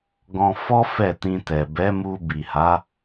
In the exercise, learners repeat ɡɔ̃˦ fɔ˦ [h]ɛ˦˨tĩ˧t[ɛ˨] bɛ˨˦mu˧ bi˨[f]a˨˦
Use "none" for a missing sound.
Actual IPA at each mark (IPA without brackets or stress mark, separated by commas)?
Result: f, ɛ˨, h